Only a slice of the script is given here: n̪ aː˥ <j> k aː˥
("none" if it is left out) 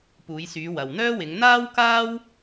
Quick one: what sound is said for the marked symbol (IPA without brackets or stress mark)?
w